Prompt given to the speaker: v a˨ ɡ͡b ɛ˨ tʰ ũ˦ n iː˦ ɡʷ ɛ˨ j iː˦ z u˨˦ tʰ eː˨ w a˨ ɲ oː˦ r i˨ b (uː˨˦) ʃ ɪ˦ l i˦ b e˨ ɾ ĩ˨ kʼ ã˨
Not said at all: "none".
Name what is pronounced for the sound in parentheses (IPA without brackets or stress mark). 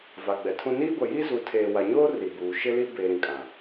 uː˨